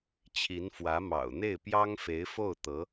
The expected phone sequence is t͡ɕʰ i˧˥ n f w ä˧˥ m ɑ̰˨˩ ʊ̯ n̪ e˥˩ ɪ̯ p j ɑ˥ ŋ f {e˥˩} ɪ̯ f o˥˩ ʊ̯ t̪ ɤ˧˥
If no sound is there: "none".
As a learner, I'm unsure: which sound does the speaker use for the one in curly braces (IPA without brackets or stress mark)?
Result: e˧˥